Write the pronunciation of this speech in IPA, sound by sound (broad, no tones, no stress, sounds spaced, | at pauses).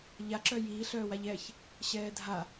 ʎ a ǁ œ j iː ɬ œː w a ʎ ɛ ç | ɕ ɛː dʱ a